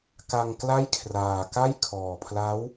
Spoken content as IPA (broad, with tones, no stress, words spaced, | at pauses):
ka˧ŋkla˥˩jkʰraː˨˩ka˥˩j kʰɔː˨˩pʰla˦˥w